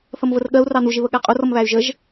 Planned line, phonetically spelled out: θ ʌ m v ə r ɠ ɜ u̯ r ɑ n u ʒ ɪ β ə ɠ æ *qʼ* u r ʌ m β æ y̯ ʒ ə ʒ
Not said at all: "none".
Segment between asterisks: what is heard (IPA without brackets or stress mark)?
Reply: qʼ